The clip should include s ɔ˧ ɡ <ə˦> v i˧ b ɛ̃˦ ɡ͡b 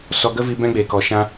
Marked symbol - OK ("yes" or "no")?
yes